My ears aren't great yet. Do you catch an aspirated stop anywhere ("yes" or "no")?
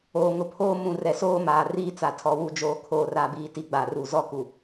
yes